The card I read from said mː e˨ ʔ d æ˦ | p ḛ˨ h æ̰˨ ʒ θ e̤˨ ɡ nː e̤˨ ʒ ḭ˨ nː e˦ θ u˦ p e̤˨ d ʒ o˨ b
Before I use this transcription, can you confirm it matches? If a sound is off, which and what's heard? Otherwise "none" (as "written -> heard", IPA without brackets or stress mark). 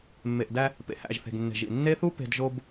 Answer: none